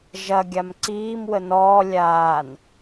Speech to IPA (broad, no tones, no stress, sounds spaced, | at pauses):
ʒ ɐ ɡʲ a m ǀ iː m w ə n ɔː lʲ aː n